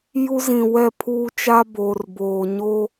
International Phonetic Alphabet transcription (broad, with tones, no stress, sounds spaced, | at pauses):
j u˦ z ĩ˨ w ɛ˦˨ pʰ uː˦ t͡ʃ a˦ b oː˨ r b oː˨ ɲ o˦